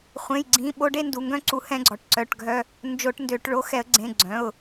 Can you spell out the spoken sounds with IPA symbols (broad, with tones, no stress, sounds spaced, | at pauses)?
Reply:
χʷ ẽ˩˧˩ j ɡ͡ǀ ĩ˩˧˩ ɓ o˧ ɖ e˥˧ n d u˩˧˩ ŋ ɡ œ̃˥˧ ǀ u˧˩˧ h ɛ̃˧ ɡ͡ǀ ɔ˩˧˩ ʈ ǀ œ˩˧˩ ʈ ɡʱ œ˧ | n d͡ʒ o˧˩˧ ʈ n d ø˧˩˧ ʈ ɭ o˩˧˩ x ɛ˧˩˧ ə̯ ɡ͡ǀ ẽ˩˧˩ ɡ͡ǀ œ̃˩˧˩ ʊ̯